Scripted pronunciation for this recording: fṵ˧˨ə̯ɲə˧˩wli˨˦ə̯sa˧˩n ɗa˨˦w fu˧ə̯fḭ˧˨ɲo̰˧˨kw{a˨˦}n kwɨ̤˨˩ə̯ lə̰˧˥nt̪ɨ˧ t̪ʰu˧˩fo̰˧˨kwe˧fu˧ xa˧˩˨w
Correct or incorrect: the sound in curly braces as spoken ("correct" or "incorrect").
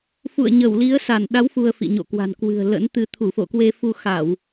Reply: incorrect